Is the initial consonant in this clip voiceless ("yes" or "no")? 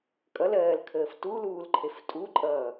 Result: yes